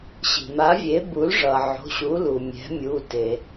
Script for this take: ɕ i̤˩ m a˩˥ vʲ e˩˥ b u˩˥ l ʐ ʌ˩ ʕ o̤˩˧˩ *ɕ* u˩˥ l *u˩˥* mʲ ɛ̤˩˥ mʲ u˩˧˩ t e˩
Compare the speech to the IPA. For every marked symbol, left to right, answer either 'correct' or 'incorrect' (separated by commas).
correct, incorrect